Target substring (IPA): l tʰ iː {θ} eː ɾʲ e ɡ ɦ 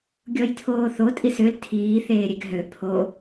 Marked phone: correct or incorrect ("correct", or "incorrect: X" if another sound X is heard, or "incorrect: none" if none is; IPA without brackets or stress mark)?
correct